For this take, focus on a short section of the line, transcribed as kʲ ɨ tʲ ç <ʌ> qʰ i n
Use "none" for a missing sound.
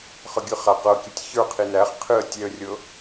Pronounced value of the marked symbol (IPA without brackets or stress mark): ə˞